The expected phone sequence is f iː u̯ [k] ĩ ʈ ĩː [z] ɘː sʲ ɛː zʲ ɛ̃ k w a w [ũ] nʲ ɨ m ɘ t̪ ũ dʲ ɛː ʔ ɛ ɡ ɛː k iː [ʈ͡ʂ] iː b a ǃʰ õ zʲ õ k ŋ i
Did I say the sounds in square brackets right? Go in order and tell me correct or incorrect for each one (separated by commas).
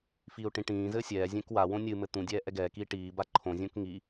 incorrect, correct, incorrect, incorrect